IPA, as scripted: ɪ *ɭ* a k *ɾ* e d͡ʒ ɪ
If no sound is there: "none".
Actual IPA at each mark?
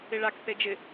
ɭ, θ

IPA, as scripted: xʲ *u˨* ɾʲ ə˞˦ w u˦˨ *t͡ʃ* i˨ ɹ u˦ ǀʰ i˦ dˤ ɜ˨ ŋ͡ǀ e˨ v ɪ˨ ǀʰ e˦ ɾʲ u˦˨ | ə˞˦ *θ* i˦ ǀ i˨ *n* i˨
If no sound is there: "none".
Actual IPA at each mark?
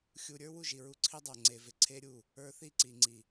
u˨, ʒ, θ, ŋ͡ǀ

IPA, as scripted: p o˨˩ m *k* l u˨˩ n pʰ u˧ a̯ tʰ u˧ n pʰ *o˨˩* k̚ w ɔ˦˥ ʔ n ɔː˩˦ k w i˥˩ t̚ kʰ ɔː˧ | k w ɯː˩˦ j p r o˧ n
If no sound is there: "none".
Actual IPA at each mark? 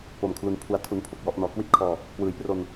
kʰ, o˨˩

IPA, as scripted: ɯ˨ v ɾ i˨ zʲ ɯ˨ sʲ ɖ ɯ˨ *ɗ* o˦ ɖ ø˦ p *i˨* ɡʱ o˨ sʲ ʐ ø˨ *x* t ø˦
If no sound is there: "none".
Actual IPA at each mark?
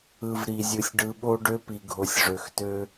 ɓ, i˨, x

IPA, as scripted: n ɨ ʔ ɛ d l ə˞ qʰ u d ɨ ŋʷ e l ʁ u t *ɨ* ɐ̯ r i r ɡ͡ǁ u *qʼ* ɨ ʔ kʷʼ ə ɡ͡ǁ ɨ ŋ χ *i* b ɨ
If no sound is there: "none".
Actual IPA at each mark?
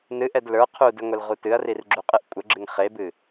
ɨ, qʼ, e

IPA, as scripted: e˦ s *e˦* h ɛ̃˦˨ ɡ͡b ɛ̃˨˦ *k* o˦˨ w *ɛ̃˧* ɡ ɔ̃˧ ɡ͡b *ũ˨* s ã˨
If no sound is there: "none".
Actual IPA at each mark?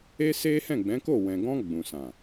e˦, k, ɛ̃˨, ũ˨

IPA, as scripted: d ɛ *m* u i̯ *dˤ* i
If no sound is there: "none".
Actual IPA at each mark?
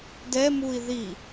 m, ð

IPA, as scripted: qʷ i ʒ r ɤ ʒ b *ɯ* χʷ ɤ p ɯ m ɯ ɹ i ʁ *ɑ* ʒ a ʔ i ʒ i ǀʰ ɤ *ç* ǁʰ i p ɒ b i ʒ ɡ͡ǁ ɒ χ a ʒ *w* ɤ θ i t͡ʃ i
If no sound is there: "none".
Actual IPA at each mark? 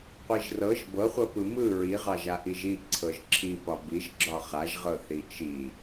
ɤ, ɑ, ʒ, ʁ

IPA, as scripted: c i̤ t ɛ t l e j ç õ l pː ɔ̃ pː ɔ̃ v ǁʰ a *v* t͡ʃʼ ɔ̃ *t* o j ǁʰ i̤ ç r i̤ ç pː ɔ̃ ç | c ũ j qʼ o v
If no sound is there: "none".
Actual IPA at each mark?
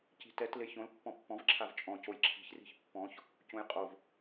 v, c

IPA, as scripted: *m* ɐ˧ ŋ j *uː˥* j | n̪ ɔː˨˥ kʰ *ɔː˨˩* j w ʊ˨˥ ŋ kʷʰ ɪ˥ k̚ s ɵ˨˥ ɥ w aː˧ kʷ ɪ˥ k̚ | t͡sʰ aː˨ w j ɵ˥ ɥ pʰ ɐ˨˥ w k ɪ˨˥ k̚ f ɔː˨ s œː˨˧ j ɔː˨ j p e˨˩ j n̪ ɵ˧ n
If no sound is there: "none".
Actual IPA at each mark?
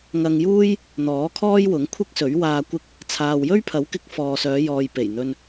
ŋ, uː˥, ɔː˥

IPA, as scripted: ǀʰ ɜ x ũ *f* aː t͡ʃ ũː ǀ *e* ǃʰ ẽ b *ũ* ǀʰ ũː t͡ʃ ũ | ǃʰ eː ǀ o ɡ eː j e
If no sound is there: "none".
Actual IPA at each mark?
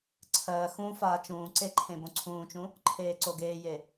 f, e, õ

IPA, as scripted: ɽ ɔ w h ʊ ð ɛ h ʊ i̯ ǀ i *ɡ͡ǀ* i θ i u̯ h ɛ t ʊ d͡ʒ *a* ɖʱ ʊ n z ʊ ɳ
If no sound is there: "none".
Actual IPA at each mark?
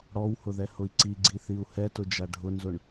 ɡ͡ǀ, a

